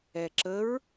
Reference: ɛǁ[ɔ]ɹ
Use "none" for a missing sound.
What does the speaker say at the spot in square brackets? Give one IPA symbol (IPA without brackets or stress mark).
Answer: ə